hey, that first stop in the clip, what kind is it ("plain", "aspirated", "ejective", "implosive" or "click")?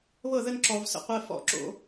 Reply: click